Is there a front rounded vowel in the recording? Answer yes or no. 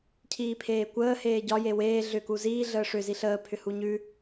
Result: yes